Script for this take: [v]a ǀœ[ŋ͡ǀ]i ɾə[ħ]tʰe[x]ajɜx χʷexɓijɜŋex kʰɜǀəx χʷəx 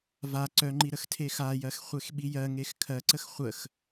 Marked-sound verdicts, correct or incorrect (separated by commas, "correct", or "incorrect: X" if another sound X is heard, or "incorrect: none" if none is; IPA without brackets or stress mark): correct, incorrect: ŋ͡ǃ, incorrect: x, correct